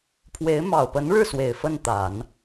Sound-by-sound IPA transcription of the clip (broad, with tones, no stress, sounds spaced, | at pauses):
pʰ w e˧˥ ɪ̯ m ɑ˨˩ ʊ̯ p ə˧˥ n ɻ ɻ̩˥˩ s w e˨˩ ɪ̯ f ə˥˩ n t̪ a˨˩˦ n